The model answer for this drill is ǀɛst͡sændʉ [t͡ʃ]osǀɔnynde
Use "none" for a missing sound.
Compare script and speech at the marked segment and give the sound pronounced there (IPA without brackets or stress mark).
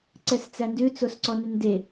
t͡s